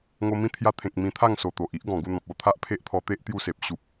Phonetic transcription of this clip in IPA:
ŋo˧mĩ˦ t̪ʰja˧t̪ʰẽ˨k̚ mĩ˧t̪ʰa˥˧ŋ so˨˩t̪o˨ʔ i˦ʔ ɡɔ̃˨˩ɡu˥˧n̪ɔ̃˨p̚ o˦t̪ʰa˦ʔpʰe˦ʔt̪ʰɔ˧ t̪e˦ʔ t̪ju˦se˨p̚ ɕu˦p̚

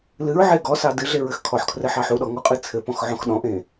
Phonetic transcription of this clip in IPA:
lɨɹʕe ɡɔ sɑdɨɮeɹ ɘxkʰɔħkʰrɘ ħɑħuɗɔ ŋɔqʼɨt͡sʰɘpɔ̃x ʕɔ̃xɗɔ̃ʔẽ

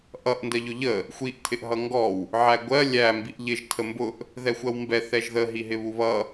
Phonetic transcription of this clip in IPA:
ʔʌʔ ndɜʎʊʎə | xʷiʔ tʰɪʔɦʌŋɡɔw | ʕæɡʷɜ lʲæ mbiʔʎɪʒ tʰəmbʊʔ | ðɛxʷɜwmbɛ θɛʒðə ɦiɦɪβuβʌ

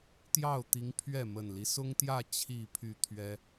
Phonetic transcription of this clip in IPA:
t̪jɑ˥˨ʊ̯t̪i˨˦ŋ pʰɥɛ˥˨ mə˨˩nli˦ sʊ˦ŋt̪jä˥˨ t͡ɕʰi˥˨pʰy˥˨ t̪ʰɥɛ˦

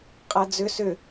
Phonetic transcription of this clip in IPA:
qʼɛd͡zʏ sʏ

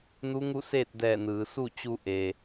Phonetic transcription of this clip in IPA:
nu˧˥ŋu˥˨seː˥˨t̚dɛː˧˩ nɯː˩˧ su˥˨t͡ɕu˧ ʔe˩

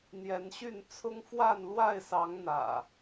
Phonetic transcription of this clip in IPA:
n̪jɛ˨˦nɕy˥˨n t͡sʰʊ˦ŋ fwa˥˨nlwa˥˨ɪ̯sɑ˨˦ŋ n̪ä̰˨˩

